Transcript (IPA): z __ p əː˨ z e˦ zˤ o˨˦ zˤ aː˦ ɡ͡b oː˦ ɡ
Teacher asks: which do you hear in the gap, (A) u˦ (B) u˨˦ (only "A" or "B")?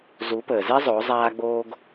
B